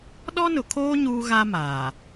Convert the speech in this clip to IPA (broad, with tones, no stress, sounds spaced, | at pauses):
ɗ ɔ˦ n ʊ˨ kʰ oː˦ ɲ uː˦ ɣ a˦ m aː˨